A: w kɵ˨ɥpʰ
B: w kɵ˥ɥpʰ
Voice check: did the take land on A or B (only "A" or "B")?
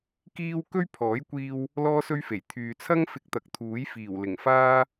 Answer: B